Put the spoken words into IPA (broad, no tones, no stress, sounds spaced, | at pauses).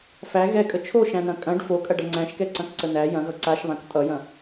f æ ɣ ɛ kʼ ə t͡ʃʰ o ʃ æ̃ n ɐ̃ kʼ ɐ̃ ɖ f o kʼ ɐ ɖ ɐ ŋ͡ǀ æ̃ ʃ k ɛ ǀ ɐ̃ k ǀ ə n æ j ɐ̃ ɣ ʌ ǀ a ʃ β ã k tʼ ʌ j ɐ̃